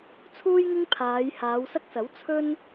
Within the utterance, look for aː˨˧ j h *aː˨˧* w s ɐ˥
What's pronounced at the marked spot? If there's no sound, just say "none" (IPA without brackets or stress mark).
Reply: aː˨˧